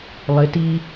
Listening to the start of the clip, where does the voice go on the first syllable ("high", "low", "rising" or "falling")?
rising